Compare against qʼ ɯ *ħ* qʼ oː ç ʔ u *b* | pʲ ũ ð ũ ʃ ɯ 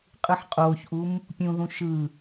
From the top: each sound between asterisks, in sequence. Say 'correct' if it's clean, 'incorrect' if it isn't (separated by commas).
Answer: correct, incorrect